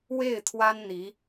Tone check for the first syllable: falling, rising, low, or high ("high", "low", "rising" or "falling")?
falling